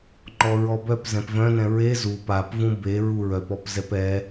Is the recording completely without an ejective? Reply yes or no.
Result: yes